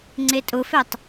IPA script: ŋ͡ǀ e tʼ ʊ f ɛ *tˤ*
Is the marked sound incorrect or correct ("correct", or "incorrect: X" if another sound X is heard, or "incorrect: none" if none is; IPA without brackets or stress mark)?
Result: correct